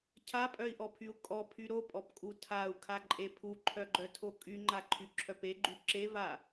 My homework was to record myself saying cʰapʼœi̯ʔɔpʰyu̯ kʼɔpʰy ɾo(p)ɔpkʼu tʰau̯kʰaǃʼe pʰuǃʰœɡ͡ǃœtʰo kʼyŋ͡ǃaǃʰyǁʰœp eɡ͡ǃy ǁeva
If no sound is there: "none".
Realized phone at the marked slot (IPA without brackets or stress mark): pʼ